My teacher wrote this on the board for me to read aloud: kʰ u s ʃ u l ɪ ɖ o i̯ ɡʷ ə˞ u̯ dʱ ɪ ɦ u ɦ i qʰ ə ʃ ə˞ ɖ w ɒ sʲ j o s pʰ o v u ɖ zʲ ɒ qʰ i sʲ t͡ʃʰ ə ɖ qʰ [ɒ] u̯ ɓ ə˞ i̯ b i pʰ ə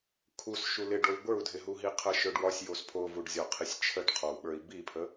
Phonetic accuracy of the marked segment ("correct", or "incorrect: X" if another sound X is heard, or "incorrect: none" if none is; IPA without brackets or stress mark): correct